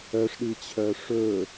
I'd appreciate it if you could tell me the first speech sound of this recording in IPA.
œ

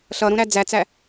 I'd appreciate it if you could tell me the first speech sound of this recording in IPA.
ɬ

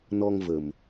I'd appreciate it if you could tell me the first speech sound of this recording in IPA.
n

